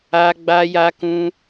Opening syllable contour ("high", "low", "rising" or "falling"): high